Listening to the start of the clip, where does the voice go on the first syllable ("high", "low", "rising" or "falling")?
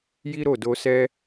high